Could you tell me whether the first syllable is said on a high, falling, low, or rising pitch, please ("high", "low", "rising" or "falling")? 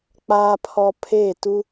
low